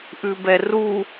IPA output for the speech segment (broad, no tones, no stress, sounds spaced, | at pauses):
ʔ ʉ b ɛ r u